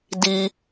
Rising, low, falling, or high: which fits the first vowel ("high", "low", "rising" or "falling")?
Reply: high